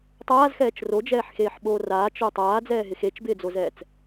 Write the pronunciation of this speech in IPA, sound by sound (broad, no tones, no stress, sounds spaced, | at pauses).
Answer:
tˤ aː z x ɛː t͡ʃ r o d͡ʒ ɛː ħ x eː ħ ɓ oː r aː t͡ʃ o tˤ aː d͡z ɛː ɦ ɪ x e t͡ʃ b ɪː d͡z o z ɛː t͡s